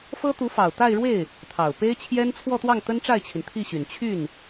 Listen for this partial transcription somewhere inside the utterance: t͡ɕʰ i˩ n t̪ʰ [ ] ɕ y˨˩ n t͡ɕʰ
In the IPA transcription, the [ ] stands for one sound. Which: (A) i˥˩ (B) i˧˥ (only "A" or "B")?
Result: A